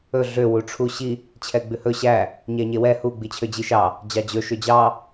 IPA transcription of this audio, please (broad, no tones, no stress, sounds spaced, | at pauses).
ɵ ɮ ø w u ʈ͡ʂʰ u ɕ i | t͡ɕʰ ɛ ɡ͡b ʉ h ɵ ɕ æ | ɲ æ ɲ e w ɛ h u ɡ͡b i t͡ɕʰ ø d͡ʑ i ʃ ɑ | d͡ʑ ɑ d͡ʑ ɵ ʃ ø d͡ʑ ɑ